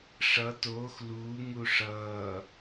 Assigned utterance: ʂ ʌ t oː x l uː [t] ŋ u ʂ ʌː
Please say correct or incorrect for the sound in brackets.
incorrect